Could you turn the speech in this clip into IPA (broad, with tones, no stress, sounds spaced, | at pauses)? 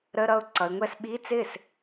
ɾ ə˧˥˧ ɾ ʌ˥˩ ʊ̯ ǀ ʌ˩˧ ɪ̯ ŋʷ ɛ˥˩ s ɓ i˧˥˧ t͡s ɪ˥˩ s